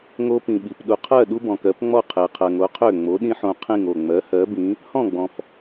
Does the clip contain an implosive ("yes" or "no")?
yes